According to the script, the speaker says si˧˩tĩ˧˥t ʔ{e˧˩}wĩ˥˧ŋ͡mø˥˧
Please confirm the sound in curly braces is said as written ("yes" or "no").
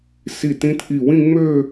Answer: no